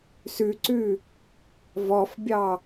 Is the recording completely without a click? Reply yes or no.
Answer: no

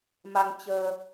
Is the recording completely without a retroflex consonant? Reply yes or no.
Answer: yes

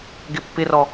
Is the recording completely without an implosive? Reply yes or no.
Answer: yes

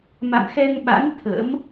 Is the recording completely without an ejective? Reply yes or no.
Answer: yes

